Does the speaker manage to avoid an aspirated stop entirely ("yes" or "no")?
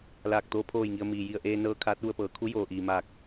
no